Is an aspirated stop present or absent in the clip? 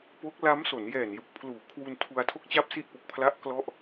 present